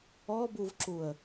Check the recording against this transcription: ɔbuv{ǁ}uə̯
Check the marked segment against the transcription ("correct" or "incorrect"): correct